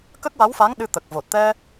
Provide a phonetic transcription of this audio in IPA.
k ə˦˥ k̚ w a˧˥ w f a˧˥ ŋ ɗ ɨ˧ t̪ ə˨˩ k̚ v o˨˩ t̚ t̪ ɛ˧

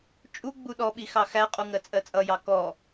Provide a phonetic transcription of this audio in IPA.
t͡ʃʼ u ɡ͡b u ɗ ɔ ɓ i x ɑ x æ qʼ u ŋ ɜ t͡sʼ ɜ t͡sʼ ʌ j ɑ k ɔ

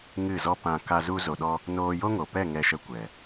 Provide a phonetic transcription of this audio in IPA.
ŋ ɨ˦˨ z ɔ˦ p ã˧ k a˦ z u˦ z o˧ ɗ ɔ˦ | n oː˧ j o˦ ŋ o˨ p ɛ˦˨ ŋ ɛ˧ ʃ ə˧ kʷ ɛ˨

